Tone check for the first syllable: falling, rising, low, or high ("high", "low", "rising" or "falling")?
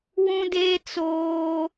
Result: high